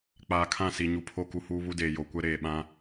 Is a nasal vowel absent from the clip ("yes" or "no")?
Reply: no